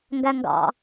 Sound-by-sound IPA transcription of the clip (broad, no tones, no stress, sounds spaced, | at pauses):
ŋ ɡ æ ŋ ɡ ɑ̰